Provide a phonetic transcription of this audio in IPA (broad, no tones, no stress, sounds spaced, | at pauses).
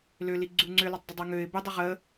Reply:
l ø l i ɡ͡ǀ u ŋ͡ǀ ø l y tˤ dˤ ɪ dˤ ɛ ŋ ø ɪ̯ b ɪ dˤ ɪ ʁ ə